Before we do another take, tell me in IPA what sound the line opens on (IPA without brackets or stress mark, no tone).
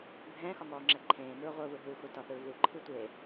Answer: bʱ